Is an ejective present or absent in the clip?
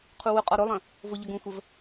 present